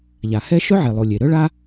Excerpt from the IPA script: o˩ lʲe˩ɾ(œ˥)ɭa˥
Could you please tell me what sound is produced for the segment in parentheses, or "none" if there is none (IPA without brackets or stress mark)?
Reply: œ˥